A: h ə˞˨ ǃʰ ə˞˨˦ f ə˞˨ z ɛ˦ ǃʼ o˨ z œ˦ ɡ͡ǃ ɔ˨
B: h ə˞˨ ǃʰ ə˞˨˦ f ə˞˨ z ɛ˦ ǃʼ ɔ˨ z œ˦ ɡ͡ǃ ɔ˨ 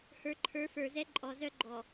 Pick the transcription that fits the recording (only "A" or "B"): B